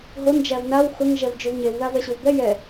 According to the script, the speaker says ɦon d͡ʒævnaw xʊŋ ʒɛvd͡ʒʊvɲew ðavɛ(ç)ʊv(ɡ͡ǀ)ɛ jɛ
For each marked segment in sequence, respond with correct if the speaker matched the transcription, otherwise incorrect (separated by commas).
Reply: incorrect, incorrect